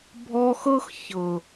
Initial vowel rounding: rounded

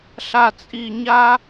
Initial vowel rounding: unrounded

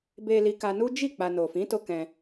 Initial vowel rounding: unrounded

